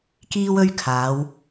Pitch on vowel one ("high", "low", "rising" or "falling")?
high